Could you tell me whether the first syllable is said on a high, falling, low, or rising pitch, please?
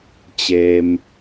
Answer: low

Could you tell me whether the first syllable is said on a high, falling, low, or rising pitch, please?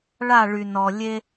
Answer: falling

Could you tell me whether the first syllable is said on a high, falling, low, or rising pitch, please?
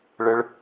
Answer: high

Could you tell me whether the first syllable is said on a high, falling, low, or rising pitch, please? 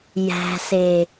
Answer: low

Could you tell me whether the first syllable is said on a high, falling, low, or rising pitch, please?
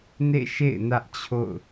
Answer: falling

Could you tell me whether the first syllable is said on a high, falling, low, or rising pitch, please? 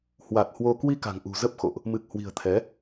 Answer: low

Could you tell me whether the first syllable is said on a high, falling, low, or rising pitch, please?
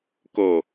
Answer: low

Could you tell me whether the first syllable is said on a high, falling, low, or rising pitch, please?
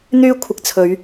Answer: high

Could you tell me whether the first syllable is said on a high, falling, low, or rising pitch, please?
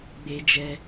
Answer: high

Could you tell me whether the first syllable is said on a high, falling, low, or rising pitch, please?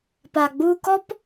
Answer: low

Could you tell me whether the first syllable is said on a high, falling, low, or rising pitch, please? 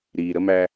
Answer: low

